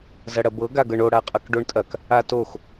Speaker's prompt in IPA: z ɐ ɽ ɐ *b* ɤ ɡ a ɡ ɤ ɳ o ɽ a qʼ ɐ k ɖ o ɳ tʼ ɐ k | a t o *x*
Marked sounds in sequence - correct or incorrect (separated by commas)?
correct, correct